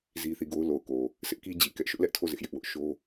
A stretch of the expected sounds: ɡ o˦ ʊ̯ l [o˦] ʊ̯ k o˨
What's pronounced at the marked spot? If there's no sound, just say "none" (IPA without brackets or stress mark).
o˨